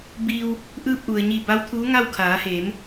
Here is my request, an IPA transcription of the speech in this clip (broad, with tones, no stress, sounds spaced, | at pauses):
b iː˧ w | ʔ ɯː˧ p̚ ʔ u˩ ə̯ ɲ i˧˩ b a˧˥ w t̪ʰ uː˧˥ ŋ a˥˨ w kʰ aː˩˧ h eː˩˧ m